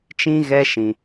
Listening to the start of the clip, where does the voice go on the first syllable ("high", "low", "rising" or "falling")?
high